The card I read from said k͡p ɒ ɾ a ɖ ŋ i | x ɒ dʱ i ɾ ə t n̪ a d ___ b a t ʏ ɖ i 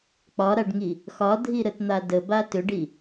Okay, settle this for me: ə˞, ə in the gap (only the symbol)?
ə